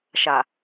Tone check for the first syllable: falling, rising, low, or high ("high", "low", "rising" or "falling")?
low